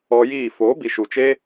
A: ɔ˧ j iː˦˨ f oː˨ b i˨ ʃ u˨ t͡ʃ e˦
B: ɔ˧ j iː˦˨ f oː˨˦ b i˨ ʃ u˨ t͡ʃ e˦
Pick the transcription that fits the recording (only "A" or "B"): B